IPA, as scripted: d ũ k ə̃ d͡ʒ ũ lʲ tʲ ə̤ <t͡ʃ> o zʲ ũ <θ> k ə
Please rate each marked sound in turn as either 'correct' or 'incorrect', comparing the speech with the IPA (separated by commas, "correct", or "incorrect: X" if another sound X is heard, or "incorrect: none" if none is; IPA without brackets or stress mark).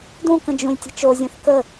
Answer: correct, correct